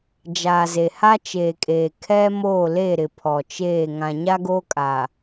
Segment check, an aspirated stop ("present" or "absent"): present